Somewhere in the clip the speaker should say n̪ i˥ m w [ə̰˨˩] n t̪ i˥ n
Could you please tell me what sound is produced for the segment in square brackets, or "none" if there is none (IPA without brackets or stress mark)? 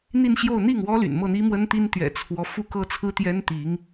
ə˥